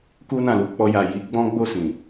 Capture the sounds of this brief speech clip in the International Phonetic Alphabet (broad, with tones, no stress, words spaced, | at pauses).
ku˦nã˦˨lu˨˦ k͡pɔ˧ja˨ ji˨˦ ɡ͡bɔ̃˦ɡ͡bo˦˨sĩ˨